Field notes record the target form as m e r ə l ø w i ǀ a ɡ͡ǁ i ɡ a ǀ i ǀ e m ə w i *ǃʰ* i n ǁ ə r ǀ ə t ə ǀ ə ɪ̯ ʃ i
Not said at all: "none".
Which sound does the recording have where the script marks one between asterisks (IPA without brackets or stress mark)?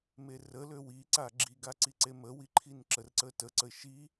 ǃʰ